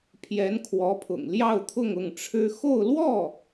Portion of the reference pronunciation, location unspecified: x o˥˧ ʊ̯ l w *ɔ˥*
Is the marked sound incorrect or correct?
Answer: incorrect